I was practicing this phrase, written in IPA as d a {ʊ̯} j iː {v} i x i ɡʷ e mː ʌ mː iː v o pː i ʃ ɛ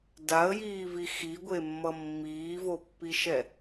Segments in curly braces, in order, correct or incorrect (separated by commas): incorrect, correct